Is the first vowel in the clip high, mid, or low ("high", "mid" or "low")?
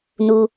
high